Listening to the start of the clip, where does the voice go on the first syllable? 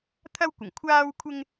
high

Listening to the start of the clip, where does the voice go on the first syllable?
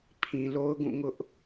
low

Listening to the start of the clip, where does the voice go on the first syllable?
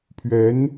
rising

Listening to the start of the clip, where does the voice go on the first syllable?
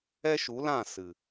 high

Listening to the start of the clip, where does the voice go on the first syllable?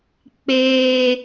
low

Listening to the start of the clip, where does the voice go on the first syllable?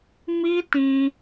high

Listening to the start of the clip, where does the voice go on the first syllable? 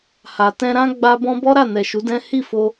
low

